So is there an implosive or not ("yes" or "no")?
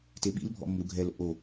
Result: yes